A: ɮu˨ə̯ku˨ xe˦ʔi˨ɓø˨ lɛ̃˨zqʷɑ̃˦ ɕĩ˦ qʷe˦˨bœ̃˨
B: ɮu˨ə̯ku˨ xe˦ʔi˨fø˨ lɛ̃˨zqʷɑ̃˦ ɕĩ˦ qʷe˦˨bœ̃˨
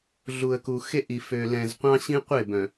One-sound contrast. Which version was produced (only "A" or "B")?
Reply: B